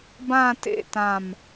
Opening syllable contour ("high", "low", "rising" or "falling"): falling